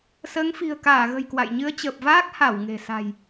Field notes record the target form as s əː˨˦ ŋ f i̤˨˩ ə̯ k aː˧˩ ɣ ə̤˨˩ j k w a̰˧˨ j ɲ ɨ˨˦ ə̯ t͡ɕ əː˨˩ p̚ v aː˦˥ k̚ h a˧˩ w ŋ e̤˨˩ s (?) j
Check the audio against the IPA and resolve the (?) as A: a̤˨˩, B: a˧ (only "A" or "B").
A